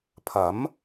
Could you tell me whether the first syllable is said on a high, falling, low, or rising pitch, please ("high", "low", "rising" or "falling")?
rising